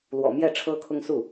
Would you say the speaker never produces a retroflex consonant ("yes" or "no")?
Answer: no